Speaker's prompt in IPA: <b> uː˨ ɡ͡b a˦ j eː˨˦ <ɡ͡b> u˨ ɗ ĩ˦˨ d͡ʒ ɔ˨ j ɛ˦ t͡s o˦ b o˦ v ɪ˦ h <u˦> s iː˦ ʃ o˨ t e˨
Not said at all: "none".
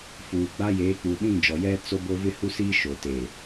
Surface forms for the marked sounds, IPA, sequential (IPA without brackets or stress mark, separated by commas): f, k͡p, u˦